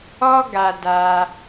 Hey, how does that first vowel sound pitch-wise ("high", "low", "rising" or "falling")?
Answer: high